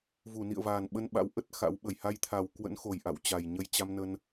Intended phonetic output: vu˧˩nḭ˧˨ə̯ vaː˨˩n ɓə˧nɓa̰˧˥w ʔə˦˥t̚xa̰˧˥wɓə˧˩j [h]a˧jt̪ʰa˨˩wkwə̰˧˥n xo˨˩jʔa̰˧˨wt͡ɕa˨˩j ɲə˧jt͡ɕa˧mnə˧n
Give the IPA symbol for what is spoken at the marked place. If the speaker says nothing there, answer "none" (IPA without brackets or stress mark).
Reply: h